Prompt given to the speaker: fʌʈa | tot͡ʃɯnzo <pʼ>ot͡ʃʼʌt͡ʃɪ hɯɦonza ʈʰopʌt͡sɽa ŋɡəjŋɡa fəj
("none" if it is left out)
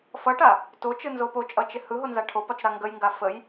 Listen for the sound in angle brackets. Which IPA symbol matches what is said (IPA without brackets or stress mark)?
p